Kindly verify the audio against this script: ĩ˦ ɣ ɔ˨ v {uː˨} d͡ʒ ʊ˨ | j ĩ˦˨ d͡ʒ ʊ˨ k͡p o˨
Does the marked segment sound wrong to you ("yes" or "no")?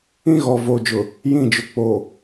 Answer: yes